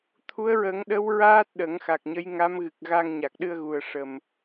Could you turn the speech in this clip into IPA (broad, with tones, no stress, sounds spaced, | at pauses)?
t̪ʰ u˧˥ ə̯ ɹ ə˨˩˦ ŋ ɗ ə˧˥ w ɹ aː˦˥ t̚ ɗ ə˨˩˦ ŋ x a˨˩ k̚ ɲ ə˧˥ j ŋ a˧˥ m ɣ ɨ˨˩ k̚ ɣ a˧ ŋ ɲ a˨˩ k̚ ɗ ɨ˧ ə̯ ɣ u˨˩ ə̯ ʂ ə˨˩ m